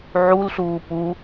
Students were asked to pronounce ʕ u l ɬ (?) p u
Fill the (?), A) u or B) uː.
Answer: B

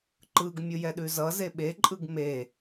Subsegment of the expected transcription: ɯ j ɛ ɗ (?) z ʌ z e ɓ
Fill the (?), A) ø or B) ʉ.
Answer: B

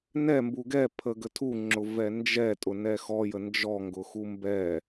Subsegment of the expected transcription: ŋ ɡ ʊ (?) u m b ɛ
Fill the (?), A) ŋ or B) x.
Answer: B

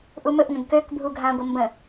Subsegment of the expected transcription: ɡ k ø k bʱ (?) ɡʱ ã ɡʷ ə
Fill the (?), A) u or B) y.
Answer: A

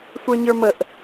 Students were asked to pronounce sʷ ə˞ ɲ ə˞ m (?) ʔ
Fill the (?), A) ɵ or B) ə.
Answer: B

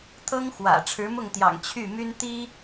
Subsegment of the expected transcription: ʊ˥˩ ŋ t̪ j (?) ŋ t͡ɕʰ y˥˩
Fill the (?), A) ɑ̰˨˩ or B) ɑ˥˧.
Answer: A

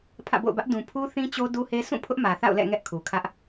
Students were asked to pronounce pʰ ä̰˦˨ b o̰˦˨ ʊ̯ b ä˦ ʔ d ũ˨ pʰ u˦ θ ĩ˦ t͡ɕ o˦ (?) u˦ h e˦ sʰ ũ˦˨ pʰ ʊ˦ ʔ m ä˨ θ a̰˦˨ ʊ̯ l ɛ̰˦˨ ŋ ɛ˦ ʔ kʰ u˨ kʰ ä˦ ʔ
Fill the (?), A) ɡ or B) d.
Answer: B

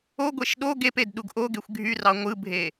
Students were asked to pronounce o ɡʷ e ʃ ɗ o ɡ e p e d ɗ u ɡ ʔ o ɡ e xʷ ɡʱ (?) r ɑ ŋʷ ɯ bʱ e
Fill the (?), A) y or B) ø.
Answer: A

